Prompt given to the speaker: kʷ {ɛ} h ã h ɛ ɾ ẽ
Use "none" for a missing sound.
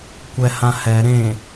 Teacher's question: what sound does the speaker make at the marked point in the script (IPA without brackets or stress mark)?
ɛ